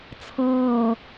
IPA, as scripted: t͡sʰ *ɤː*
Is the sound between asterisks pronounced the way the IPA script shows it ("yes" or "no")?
yes